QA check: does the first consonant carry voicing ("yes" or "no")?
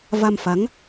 yes